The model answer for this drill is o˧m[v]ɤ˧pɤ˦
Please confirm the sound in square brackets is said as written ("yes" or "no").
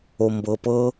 no